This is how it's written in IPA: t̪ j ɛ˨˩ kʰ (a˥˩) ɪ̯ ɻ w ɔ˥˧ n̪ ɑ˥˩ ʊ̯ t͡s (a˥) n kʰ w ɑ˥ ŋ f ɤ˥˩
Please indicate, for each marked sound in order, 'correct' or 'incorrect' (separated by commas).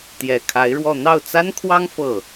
incorrect, correct